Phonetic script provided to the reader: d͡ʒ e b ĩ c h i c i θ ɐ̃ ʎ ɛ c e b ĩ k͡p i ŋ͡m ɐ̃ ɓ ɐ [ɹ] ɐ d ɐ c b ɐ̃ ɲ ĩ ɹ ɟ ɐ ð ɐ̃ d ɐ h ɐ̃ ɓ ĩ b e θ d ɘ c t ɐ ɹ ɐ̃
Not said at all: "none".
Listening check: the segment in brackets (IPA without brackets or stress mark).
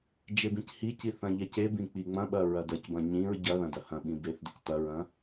ɹ